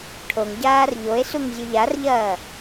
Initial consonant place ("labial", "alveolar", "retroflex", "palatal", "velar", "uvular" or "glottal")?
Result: retroflex